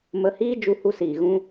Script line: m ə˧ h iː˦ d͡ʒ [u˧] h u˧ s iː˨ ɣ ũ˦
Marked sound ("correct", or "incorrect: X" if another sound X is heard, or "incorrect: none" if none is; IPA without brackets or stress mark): correct